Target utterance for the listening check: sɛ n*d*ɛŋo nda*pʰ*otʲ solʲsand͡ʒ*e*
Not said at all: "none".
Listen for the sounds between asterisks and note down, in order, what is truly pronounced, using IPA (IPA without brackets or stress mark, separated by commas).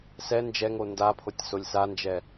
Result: d͡ʒ, pʰ, ɛ